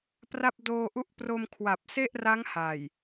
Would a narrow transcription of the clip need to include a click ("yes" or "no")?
no